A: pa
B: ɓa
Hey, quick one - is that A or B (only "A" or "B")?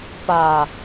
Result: A